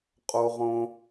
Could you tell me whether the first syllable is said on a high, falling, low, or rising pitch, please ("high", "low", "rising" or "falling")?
high